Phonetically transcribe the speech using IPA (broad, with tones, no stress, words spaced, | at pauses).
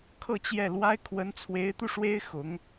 kʰɤ˥˧t͡ɕjɛ˥˩ lwa˥ɪ̯ kʰwə˧˥nt͡sʰwe˧˥ɪ̯t̪u˧ ʂwe˥ɪ̯xʊ˧˥ŋ